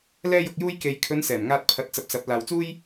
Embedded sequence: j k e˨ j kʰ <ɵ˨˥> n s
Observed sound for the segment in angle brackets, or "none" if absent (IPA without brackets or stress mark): ɵ˨˧